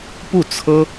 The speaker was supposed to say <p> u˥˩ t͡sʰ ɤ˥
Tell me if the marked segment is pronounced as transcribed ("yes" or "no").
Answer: yes